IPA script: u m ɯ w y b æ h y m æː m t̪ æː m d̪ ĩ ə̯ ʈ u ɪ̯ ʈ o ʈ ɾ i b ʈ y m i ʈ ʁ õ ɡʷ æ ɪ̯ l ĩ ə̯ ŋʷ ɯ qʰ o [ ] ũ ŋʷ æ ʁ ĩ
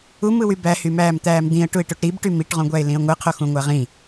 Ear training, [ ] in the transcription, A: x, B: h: A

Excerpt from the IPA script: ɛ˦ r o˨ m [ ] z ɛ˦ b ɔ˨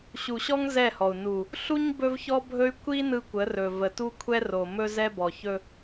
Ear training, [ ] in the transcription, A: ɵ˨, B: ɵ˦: B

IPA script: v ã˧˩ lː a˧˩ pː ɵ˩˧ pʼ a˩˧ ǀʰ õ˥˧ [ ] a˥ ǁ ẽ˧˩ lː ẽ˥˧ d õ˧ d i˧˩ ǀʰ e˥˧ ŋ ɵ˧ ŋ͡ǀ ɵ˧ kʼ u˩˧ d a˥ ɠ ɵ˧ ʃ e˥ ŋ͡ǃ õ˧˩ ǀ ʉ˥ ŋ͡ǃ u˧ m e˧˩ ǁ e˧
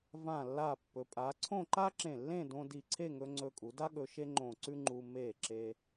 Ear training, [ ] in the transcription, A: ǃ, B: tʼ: A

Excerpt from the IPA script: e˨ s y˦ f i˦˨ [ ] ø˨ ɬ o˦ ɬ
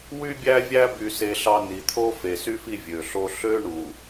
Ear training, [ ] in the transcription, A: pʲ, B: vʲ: B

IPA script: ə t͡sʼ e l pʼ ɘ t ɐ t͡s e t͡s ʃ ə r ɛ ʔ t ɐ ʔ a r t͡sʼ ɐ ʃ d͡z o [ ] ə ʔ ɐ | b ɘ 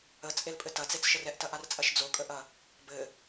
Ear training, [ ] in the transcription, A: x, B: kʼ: B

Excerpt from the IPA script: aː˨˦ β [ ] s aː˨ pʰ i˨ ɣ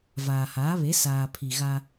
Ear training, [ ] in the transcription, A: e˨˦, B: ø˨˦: A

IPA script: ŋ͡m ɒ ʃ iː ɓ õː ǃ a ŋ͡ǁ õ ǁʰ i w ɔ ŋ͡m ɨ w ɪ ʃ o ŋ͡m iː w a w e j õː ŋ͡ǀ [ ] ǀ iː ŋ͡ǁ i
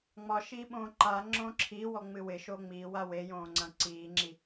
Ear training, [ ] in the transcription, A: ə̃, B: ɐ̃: B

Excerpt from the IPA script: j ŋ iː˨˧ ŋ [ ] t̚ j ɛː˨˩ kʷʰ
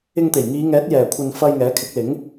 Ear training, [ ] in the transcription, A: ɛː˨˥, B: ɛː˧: A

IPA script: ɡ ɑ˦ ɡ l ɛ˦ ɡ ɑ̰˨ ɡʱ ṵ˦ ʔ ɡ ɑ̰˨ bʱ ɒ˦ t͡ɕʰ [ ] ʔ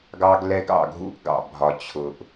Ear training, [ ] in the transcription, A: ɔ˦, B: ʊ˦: B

